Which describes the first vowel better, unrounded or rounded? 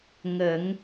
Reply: unrounded